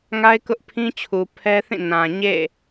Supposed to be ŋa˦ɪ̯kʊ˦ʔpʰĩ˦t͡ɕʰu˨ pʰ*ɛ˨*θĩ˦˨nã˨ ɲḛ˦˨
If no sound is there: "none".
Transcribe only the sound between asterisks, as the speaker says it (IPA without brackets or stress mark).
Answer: ɛ˦